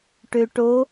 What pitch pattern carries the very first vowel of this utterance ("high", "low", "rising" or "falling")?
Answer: low